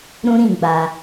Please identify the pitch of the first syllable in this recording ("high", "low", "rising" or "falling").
high